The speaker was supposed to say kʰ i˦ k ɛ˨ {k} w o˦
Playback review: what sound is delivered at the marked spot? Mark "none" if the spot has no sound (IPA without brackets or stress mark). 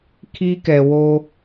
none